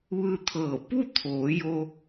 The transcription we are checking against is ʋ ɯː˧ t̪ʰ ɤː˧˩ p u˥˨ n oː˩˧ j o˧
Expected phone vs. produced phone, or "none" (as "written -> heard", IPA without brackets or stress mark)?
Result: n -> t̪ʰ